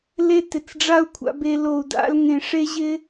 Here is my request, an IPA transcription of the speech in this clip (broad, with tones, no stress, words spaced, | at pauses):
le˦tɪ˨t͡s ɖ͡ʐa˦u̯kʷʰa̰˧be˧lo˨u̯ da̰˧lŋẽ˨ ʂe˦ʑɪ˦